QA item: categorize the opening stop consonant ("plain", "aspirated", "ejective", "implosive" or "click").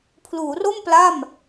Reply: aspirated